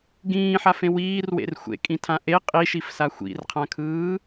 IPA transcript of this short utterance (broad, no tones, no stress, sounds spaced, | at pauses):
ɡ ĩː ħ a f ẽ w iː r w ḛ r xʷ ḛ kʼ ĩ tʰ ã ʔ e qʼ i ʃ i f s a xʷ ḭ r qʰ ã kʰ ɯː